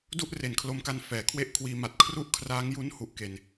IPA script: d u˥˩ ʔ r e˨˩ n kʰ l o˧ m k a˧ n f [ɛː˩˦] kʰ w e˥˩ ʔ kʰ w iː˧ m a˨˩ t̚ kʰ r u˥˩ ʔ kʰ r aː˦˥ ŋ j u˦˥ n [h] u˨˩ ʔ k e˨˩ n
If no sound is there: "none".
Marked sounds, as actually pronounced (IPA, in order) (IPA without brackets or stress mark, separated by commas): ɛː˩˦, h